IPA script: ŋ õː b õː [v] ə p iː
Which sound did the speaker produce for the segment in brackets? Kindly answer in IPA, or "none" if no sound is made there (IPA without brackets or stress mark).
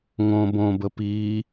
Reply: b